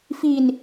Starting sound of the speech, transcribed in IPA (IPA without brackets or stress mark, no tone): f